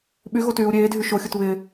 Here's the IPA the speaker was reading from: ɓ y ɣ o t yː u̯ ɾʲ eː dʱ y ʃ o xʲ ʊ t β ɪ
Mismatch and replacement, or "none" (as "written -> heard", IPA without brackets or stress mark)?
none